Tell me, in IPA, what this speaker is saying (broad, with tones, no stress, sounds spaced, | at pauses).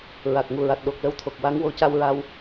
ɹ a˨˩ k̚ ŋ u˨˩ ɹ a˨˩ t̚ ɗ o˨˩ k̚ l ə˧ w t̪ʰ o˨˩ k̚ w a˧˥ ŋ w o˧ c a˧ w ɹ a˧ w